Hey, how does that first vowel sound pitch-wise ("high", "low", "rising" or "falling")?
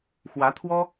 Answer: rising